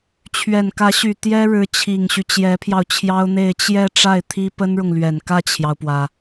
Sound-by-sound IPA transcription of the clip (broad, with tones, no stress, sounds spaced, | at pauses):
t͡ɕʰ ɥ ɛ˨˩ n k ä˧˥ ɕ y˨˩ t̪ j ɛ˥ ɻ ɻ̩˧˥ t͡ɕʰ i˨˩ ŋ ɕ y˦ t͡ɕ j ɛ˧˥ pʰ j ɑ˧ ʊ̯ t͡ɕʰ j ɑ˥ ʊ̯ n̪ e˥˧ ɪ̯ t͡ɕ j ɛ˥˧ ʈ͡ʂ a˥˩ ɪ̯ t̪ʰ i˥ p ə˥ n ɻ ʊ˨ ŋ l ɥ ɛ˨˩ n k ä˥˩ t͡ɕʰ j ɑ˩ ʊ̯ p w ä˩